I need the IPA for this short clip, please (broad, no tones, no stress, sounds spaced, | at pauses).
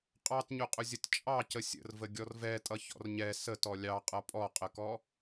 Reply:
qʼ ɑ t ɲ ʊ qʼ ʊ zʲ ə t t͡ʃʼ ɑ c ə sʲ ə̰ r v ə ɡʲ ɔ r v ɛ tʼ ʌ ç ɔ̰ r ɲ ɛ s ə t ɔ lʲ ɑ qʼ ʌ pʼ ɔ qʼ ə k ɔ